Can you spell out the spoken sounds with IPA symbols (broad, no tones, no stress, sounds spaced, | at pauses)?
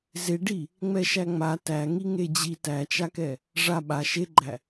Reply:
z e ɖ i | ŋ͡m ɛ ʃ æ ŋ͡m a t æ ŋ i ŋ e d͡ʑ i t æ t͡ʃ a k ɛ | ʐ a ɓ a ʃ e ɡ͡ǃ æ